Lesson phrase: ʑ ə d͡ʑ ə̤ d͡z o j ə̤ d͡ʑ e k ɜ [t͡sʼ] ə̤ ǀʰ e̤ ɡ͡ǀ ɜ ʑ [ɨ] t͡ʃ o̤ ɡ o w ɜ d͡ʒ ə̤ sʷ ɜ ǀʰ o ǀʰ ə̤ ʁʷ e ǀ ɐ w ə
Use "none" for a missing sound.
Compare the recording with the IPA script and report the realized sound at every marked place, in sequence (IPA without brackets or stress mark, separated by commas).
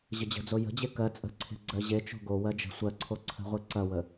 t͡sʼ, e